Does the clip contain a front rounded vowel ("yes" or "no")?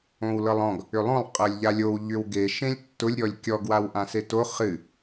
yes